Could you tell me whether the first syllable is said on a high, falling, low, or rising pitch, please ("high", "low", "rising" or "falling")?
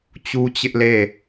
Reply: high